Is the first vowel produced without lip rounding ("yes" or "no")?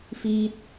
yes